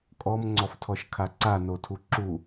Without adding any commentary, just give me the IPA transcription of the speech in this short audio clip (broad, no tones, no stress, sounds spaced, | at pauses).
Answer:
kʼ ɔ m ŋ͡ǀ ɔ f tʰ ɔ ʃ kʰ a ǀ a n o tʰ u ǁ u